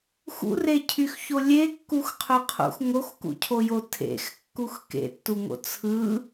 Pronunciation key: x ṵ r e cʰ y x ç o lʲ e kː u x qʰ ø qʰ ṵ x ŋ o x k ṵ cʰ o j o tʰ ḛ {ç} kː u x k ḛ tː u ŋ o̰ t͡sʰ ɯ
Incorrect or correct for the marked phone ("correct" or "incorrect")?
incorrect